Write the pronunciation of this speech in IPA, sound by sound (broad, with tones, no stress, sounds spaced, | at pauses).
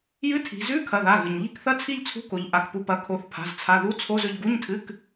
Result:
j ɨ˧˥˧ tʰ i̤˩˧ z ʉ˧˥˧ kʰ ɐ˩˧˩ ð a˩˧˩ ɣ ɨ˩ ɲ ʎ i̤˧˥˧ k θ ɐ˧˥˧ t͡sʰ i˦˨ ʎ t͡sʰ ṳ˧˥˧ k o˩˧ ʎ ʔ a˩˧˩ k p u˩˧ p ɐ˩˧˩ kʰ o˩˧ θ pʰ a̤˩˧˩ z t͡sʰ a˩˧˩ ð u˧˥˧ t͡sʰ o˧˥˧ z ɵ˦˨ ʎ ɡ u˧˥˧ ɲ tʰ ɨ˧˥˧ k